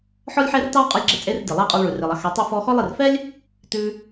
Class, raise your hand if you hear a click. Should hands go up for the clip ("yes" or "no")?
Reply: yes